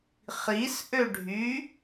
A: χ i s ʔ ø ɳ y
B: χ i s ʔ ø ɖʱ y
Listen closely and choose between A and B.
B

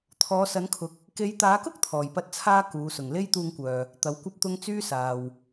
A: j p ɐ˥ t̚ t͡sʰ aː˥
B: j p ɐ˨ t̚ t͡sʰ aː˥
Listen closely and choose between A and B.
A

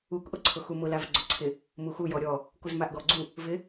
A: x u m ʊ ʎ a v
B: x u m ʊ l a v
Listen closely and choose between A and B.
B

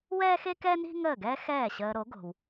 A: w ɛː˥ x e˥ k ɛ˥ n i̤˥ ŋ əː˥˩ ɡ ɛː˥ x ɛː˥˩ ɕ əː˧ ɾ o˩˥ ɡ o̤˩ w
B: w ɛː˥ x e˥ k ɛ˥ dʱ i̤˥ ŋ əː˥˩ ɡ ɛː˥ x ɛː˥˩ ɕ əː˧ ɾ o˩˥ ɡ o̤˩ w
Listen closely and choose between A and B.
A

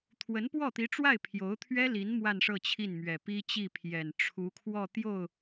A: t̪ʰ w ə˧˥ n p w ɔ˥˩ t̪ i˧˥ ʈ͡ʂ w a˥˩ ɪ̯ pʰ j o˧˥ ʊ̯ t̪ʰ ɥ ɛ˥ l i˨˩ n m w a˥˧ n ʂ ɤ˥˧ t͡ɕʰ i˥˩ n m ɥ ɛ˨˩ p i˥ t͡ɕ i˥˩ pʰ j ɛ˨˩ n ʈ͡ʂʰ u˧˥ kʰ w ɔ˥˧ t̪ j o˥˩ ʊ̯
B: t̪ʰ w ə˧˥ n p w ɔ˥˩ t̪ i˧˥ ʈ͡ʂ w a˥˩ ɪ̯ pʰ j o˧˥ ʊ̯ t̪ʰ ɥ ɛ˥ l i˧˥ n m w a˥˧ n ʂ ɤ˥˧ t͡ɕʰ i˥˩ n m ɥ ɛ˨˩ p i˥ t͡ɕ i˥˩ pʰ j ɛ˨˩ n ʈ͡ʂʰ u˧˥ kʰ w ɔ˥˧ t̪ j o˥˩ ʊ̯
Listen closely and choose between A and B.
B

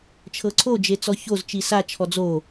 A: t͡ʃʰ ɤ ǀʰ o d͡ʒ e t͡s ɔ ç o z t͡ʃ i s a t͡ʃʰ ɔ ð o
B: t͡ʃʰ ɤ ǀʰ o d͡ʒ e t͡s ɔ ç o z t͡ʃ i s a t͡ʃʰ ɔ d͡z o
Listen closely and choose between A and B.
B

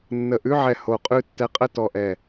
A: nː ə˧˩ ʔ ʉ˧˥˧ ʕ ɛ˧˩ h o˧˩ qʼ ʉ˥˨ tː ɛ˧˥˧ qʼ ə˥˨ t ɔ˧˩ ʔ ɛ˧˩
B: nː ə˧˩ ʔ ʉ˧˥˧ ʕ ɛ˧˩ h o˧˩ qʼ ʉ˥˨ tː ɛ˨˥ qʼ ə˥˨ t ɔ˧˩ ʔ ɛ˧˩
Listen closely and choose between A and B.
B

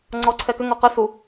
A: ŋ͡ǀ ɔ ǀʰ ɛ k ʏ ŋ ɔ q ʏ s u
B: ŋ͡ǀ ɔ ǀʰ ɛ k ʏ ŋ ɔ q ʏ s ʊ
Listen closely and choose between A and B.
A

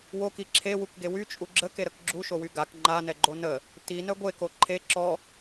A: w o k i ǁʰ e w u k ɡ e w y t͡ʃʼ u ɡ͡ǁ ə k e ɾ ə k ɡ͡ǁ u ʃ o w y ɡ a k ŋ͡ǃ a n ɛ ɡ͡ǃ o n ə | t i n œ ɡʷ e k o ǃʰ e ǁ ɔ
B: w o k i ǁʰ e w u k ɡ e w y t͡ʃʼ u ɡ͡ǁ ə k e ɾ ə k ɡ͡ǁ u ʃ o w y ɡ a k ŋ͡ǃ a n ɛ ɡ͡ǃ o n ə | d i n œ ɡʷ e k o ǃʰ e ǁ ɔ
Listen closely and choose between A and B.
A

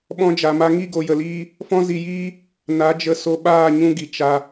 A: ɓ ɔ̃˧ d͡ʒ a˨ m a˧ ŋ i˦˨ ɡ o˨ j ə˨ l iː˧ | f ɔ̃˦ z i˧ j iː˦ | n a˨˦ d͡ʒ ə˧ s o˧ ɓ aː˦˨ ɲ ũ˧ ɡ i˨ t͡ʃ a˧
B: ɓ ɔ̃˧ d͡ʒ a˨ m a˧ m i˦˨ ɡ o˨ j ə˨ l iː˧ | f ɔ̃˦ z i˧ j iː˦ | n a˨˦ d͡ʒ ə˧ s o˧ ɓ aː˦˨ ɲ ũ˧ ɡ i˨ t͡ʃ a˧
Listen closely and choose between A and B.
A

